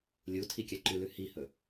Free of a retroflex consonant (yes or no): yes